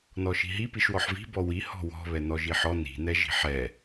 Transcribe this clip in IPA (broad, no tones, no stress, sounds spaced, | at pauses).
n ɔ ʃ i̤ ɦ i p i ʃ w ɔ ħ v i̤ b ɔ w i h ɔ̤ w ɔ̤ β ɛ n ɔ ʒ i ħ ɔ n i̤ n ɛ ʒ i̤ ħ ɛ